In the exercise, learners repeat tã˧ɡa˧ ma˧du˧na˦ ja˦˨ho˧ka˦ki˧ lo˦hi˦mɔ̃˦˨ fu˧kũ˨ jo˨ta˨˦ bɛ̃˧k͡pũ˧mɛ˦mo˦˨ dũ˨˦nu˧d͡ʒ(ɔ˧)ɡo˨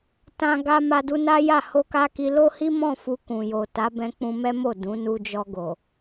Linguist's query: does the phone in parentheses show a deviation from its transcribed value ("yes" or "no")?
no